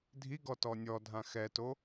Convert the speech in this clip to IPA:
dʱ i ɡ ɔ t ɔ nʲ ɔ dʱ ã x ɛ t o

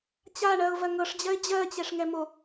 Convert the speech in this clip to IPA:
t͡ɕ a ɳ ɜ ʊ̯ v ɜ ŋ ɤ ʂ d͡ʑ ɜ ɪ̯ d͡ʑ ɜ t͡ɕ ɛ ʂ ŋ ɛ m o

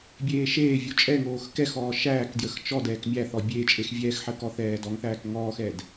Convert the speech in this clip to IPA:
bʲ eː ʃ eː vʲ u t͡ʃʼ ɛ ŋ oː x k ɛ x ɔː ʃ æː k d j ə x t͡ʃ ɔ d ɛː k mʲ æ θ ɔ bʲ eː t͡ʃʼ e x vʲ ɛː x ħ əː k ɔ θ ɛː d ɔ ŋ θ æː k ŋ ɔː x ɛ d

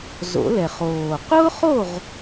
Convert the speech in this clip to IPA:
z o̰˨˩˦ l ɛ˨˩ χ oː˨˩ q ʊː˥ χ o˥˨ ʁ

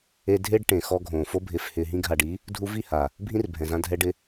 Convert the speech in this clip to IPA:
e˧ dʱ e˦ ɖ ʈ ẽ˨ x ɔ˧ ɡʱ õː˨ f o˧ bʱ ɪː˨ f h ɪː˨ ɦ ĩ˧ ɡʱ a˨ ɖ i˨˦ | dʱ u˧ v i˦˨ h a˨ | bʱ ĩ˦ r bʱ ɛ̃˨ z ã˧ dʱ ɛ˧ ɖ ɪ˧

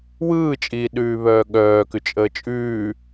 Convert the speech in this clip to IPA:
w ɯː t͡ʃʼ iː ɗ ʉː β œː ɠ œː k ʉ t͡ʃʼ əː t͡ʃʼ ʉː

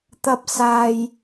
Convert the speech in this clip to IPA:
t̪ ɐ˧ p̚ s aː˧ j

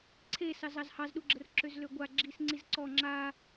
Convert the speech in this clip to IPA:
ǀʰ e s ɑ z ɑ z h ɑ z ɗ u ɡ͡ǁ ə r ǁ ø z l ø ɡʷ a ɡ͡ǁ i s ŋ͡ǀ i z ǀ ɔ ŋ͡ǁ a

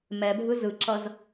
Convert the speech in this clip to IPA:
m ɛ bʱ ɯ z ɯ ǁ ʌ z

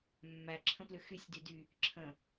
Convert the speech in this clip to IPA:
mː æ ǁʰ ə̃ p l ʏ x y sʲ d y d y | ǁʰ ə̃

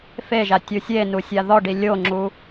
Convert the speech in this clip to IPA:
f e ʒ a tʲ u sʲ e n u sʲ a ð ɔ ɖ i lʲ o ŋ͡ǁ u

